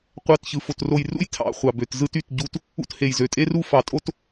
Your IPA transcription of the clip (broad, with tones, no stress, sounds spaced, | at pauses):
qʷ ɑ˦˨ t ç ɯ˨ f o˨ t r o˨ j r ṵ˦ j tʰ ɑ̰˦˨ χʷ ɑ˨ b ø˨ t z ɯ˦ t y˨ t ɟ u˦ t | ṵ˦ t h e˨ j z ø˨ tʼ e˦ r u˦ f ɑ˨ tʼ o˦ t